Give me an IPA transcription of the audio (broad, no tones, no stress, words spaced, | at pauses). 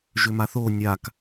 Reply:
ʒʏmaθo nʲak